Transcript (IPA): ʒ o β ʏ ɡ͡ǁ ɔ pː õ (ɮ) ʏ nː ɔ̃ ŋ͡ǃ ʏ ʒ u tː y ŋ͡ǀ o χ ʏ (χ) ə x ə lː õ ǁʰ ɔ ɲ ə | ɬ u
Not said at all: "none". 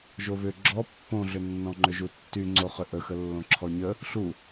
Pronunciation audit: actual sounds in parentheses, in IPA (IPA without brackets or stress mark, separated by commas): ɮ, ʔ